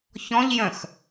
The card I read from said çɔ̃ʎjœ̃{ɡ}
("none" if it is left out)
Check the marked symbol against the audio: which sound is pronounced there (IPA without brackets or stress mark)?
x